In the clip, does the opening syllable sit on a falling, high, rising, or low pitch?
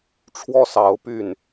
falling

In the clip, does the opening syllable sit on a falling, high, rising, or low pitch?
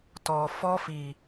low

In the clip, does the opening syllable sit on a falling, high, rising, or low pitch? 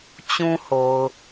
high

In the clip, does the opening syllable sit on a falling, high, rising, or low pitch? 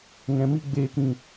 low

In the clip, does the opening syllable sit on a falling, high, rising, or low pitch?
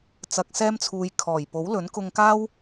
low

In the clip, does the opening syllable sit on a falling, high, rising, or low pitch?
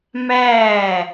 falling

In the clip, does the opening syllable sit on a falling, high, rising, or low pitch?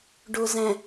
low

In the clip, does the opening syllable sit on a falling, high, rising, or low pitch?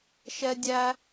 high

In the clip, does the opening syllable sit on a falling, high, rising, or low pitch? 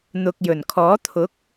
low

